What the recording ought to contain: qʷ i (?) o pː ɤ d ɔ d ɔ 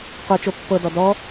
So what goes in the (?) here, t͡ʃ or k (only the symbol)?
t͡ʃ